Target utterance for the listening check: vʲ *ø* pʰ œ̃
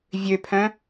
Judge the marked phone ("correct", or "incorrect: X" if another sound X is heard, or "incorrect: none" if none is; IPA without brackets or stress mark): correct